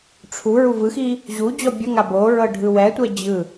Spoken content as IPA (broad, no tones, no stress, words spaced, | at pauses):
ʈ͡ʂʰu ɹuvɯxi | ʑu d͡ʑɔbʲɤŋa boɹɤ ɖʱɯwɛtʷɛ d͡ʑɯ